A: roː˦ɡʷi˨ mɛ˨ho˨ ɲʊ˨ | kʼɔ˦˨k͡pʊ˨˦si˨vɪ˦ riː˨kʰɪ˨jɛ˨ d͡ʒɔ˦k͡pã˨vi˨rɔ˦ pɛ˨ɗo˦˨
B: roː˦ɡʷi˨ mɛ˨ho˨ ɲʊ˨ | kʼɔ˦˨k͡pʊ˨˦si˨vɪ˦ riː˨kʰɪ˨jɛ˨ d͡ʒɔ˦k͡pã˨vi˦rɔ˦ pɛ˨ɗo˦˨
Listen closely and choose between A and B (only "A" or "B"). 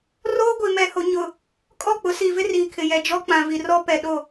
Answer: A